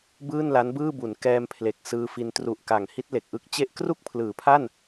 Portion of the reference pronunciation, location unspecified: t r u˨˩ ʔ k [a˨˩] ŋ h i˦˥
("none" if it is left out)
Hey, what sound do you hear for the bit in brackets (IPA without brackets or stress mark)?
a˩˦